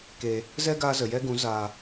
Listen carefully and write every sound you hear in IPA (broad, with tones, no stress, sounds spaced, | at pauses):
k e˨ | z ɛ˦ ɡ aː˧ z ə˨ j ɛ˦ ɡ ũ˨˦ z aː˨